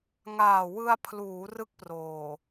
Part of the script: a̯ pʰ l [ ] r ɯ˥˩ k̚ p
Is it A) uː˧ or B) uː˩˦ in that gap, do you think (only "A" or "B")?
B